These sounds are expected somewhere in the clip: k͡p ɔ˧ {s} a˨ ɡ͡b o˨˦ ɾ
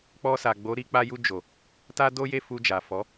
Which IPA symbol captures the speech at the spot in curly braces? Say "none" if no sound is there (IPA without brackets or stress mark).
s